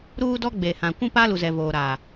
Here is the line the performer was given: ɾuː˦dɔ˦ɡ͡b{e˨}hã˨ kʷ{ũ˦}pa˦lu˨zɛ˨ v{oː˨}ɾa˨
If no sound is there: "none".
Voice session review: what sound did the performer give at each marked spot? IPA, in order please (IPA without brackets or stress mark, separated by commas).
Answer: e˨, ũ˦, oː˨